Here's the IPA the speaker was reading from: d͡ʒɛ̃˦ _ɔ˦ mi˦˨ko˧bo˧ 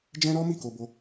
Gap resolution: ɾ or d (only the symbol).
ɾ